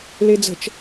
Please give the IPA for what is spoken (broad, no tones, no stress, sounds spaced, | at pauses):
l e d͡z ə̤ t͡ʃ